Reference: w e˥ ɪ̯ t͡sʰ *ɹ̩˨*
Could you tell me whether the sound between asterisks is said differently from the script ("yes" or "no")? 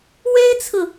no